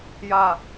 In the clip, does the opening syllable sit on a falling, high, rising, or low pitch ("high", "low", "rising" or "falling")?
low